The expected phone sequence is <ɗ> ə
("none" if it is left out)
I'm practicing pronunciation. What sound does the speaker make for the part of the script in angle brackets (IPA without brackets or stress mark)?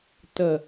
t